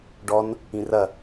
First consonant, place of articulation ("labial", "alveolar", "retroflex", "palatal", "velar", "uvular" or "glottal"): retroflex